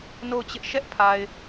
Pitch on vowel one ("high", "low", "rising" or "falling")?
falling